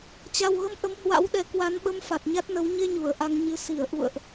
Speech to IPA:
t͡ɕ a˨˩ w ɣ ə˨˦ m ʔ ə˨˦ m h w a̰˧˥ w ɗ ɛ˨˦ k w a˨˦ n ɓ ə˧ m f a˨˩ t̚ ɲ a˦˥ t̚ n ə˨˦ w ɲ e˧ ɲ u˧˩ ə̯ ʔ a˧ ŋ ɲ ɨ˧ s i˧˩ ə̯ ʔ ṵ˧˨ ə̯ ʔ

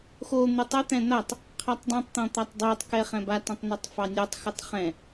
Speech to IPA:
x o n̪ ʉ tˤ ɘ t̪ ɛ̃ n̪ a tˤ | qʰ a tˤ dˤ õ tˤ t̪ ɔ̃ t̪ a tˤ dˤ ɛ tˤ k ɛ χ ɛ̃ b a t õ tˤ n ɛ tˤ f ɑ nʲ o tˤ x ɘ tˤ χ ɛ̃

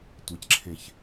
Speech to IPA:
tʷ e c ǁʰ ẽ ç

